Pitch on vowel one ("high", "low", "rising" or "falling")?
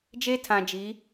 high